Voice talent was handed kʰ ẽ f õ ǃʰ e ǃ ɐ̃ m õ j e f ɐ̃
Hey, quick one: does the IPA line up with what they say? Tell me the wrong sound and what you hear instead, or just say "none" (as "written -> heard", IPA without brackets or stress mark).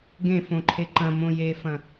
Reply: kʰ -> ɡ